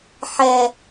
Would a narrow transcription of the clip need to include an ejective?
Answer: no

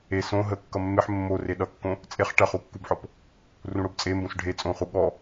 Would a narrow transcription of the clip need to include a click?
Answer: no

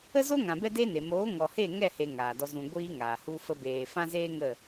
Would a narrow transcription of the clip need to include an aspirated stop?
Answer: no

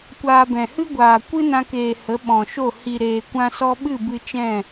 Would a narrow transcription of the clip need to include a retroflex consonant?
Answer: no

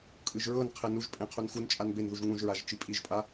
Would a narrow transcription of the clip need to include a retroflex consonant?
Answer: no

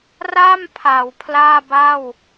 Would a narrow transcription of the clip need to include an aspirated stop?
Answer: yes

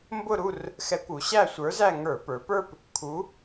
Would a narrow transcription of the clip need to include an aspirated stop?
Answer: yes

